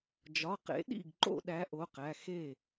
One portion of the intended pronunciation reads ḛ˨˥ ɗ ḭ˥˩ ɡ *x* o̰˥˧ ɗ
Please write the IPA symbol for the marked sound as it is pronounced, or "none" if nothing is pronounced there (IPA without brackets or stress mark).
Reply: ǃ